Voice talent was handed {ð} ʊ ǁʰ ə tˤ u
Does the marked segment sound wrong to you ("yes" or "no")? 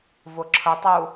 yes